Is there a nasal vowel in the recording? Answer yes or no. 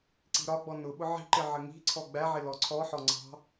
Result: no